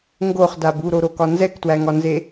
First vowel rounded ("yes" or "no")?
yes